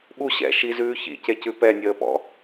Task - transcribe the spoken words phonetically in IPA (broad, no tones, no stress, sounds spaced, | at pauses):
ɓ u ɕ ɛ̰ ʃ i z ʉː ç ḭ c e c ʉ p ɛ nʲ əː p ɔ̰